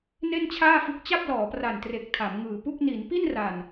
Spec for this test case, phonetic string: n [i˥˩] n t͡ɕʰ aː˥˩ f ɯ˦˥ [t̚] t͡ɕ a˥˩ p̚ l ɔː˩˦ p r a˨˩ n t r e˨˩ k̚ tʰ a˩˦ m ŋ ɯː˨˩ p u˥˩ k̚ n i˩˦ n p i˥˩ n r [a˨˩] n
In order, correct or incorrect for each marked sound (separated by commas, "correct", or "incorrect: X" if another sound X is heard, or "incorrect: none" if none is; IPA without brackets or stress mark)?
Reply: incorrect: e˥˩, incorrect: k̚, correct